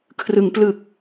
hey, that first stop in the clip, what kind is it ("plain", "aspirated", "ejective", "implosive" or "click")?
aspirated